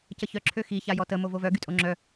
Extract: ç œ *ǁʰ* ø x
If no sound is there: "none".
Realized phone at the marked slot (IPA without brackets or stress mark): ǁʰ